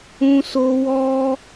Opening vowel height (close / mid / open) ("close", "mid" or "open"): close